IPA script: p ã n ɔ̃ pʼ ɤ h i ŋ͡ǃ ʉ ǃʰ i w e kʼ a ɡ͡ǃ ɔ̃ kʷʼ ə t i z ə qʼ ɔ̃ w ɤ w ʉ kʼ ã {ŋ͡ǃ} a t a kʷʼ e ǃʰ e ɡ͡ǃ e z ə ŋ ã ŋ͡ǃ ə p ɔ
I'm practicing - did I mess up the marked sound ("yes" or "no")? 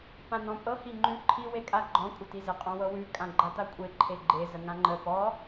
yes